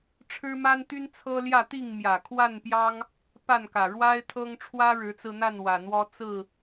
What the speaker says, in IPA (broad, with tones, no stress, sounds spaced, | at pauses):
ʈ͡ʂʰ ɻ̩˦ m a˦ n t̪ y˦ n t͡sʰ ɤ˦ l j ä˥˨ t̪ i˥˨ ŋ m j ä˨˩ kʰ w a˥˨ n p j ɑ˦ ŋ | p a˥˨ n k ä˨˩ ɻ w a˦ ɪ̯ t̪ʰ ɤ˦ ŋ ʈ͡ʂʰ w ä˦ ɻ ɻ̩˨˦ t͡s ɹ̩˧ n̪ a˥˨ n w ä˨˩ n̪ w ɔ˦ t͡s ɹ̩˥˨